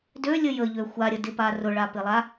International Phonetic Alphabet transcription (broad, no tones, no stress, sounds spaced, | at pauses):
d ø lʲ ə j ə ʎ ø xʷ a ɾʲ ə d ɪ p a r ʊ ɭ a p ɪ lˠ a